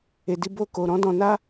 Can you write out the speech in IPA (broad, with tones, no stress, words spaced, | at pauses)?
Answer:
e˨di˧ bo˧ ko˨ɾɔ̃˨˦dɔ̃˧ na˦